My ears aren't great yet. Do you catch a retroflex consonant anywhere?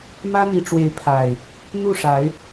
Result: yes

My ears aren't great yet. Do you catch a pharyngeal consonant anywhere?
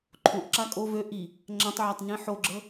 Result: yes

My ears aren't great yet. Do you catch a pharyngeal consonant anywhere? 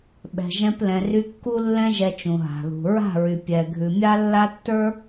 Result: no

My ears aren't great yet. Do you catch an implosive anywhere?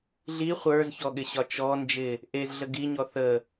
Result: yes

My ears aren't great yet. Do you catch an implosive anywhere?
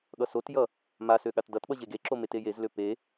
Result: yes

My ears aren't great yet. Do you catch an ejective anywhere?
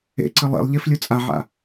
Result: yes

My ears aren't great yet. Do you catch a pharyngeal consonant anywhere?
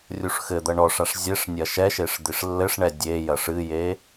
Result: no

